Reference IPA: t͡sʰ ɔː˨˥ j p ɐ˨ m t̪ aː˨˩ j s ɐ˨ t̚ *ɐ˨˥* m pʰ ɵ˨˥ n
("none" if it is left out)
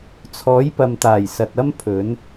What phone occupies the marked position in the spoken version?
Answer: ɐ˥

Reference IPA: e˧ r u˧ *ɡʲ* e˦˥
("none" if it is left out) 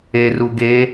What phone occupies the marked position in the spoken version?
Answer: ɡ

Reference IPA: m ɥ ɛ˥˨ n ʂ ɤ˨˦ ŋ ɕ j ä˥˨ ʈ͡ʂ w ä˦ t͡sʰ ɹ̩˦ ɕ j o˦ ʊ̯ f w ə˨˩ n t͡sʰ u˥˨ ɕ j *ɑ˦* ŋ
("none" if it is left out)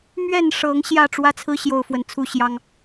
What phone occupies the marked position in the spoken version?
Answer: ɑ˦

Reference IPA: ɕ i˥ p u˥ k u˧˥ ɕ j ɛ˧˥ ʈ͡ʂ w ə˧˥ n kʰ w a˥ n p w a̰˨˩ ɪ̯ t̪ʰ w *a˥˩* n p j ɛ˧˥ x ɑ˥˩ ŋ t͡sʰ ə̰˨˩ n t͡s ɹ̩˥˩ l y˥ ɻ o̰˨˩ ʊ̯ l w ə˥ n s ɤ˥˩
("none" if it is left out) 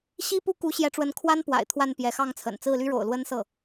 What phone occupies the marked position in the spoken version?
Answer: a˥˩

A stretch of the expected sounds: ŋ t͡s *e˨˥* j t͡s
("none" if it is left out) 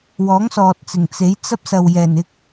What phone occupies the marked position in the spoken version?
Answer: e˨˥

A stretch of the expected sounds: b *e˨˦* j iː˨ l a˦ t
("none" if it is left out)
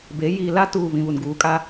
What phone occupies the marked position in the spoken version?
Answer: e˨˦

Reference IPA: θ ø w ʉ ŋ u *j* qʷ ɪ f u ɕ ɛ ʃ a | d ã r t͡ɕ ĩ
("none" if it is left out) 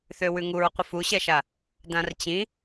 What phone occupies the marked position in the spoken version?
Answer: ɹ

